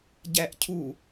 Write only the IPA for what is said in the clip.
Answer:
ɟ æ ʔ cʰ u

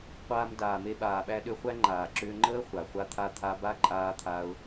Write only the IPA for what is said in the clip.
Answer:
qʷ aː˧ m d aː˨ m e˧ ɓ aː˨ ɓ æ˧ ɗ ʏ˧ χʷ æ˦ ŋ͡ǃ aː˨ ǁ ʏː˧ ŋ͡ǃ əː˦ χʷ a˨ χʷ a˦ t̪ʰ a˦ t̪ʰ a˧ b a˦ ǃʼ aː˧ t̪ʰ a˧ ʊ̯

